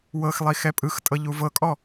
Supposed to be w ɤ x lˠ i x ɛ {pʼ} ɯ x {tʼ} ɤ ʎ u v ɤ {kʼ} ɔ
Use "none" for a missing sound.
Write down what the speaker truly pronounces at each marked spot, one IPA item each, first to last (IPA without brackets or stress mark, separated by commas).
pʼ, tʼ, kʼ